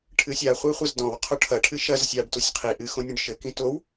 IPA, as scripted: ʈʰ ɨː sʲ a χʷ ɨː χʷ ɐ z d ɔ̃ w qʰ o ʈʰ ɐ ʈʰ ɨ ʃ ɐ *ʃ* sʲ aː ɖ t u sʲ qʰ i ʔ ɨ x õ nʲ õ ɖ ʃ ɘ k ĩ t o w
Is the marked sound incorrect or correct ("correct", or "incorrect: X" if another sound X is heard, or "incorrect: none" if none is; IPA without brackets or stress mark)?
incorrect: z